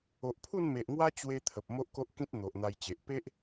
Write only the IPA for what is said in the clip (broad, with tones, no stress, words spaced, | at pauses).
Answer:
o˨ʔpʰu˥˧nme˨ʔŋwa˦ t͡ɕwe˦t̪ʰə˨p̚ mo˦ʔko˦ʔkĩ˦t̚ n̪o˨ʔn̪a˧jt͡ɕe˨ʔ pe˦ʔ